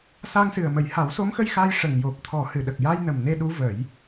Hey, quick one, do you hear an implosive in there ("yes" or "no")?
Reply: yes